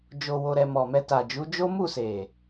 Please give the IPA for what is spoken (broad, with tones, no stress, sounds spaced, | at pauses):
d͡ʒ o˧ w o˧ ɾ ɛ˧ m ɔ˨ m ɛ˧ t a˨ d͡ʒ u˨˦ d͡ʒ o˦ m u˦˨ s e˨